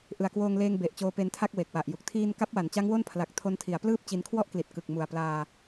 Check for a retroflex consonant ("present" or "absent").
absent